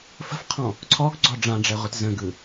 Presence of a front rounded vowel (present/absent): absent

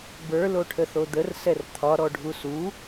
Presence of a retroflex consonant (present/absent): present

